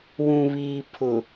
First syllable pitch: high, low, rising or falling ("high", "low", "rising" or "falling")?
low